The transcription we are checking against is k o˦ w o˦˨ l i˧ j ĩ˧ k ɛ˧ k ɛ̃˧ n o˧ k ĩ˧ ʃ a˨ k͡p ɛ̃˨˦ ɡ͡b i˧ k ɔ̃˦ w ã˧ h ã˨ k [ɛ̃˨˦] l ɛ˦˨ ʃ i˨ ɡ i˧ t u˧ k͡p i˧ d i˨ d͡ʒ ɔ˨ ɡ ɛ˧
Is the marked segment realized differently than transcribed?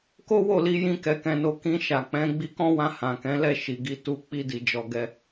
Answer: no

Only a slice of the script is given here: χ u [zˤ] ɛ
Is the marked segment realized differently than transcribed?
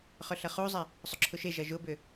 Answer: no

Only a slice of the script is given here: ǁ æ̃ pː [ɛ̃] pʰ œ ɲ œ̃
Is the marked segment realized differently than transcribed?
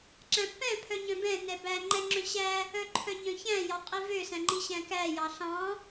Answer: no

